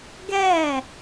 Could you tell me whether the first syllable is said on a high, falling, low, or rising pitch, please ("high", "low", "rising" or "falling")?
falling